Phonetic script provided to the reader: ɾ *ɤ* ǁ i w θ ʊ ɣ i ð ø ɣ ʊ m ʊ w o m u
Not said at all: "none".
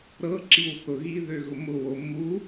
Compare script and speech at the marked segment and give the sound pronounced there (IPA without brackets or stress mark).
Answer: ɤ